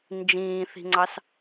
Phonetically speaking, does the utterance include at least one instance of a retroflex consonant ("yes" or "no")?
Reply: no